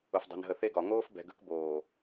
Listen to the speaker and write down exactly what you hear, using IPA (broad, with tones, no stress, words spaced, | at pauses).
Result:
ʊ˨fdˤe̤˨nɦə˨ θe˦ɡɒ˨ ŋoː˦fbɛ̤˨ɡə̤˦k boː˨